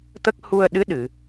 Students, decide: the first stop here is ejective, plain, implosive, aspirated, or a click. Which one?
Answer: plain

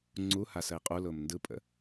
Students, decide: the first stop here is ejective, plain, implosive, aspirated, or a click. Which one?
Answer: click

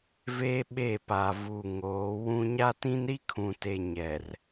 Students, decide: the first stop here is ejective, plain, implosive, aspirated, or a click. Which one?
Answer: implosive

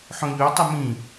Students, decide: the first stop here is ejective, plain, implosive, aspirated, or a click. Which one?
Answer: plain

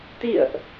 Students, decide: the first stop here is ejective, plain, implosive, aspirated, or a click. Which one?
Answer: plain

